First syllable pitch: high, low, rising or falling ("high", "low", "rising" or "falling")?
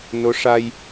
rising